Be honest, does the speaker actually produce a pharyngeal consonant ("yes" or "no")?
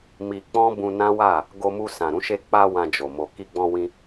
no